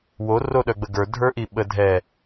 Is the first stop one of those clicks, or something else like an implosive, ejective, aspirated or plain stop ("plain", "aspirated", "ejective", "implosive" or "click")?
implosive